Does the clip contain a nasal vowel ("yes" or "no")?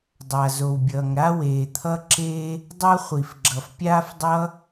no